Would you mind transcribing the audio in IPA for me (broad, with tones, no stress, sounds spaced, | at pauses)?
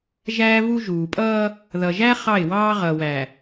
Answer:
ʒ æː˦ v u˦ ʒ uː˨ pʼ ʌː˦ | ð ʌ˨ ʒ æ˦ χ ɑ˦˨ ɪ̯ w ɑː˦ ʁ ʌː˨ w æ˨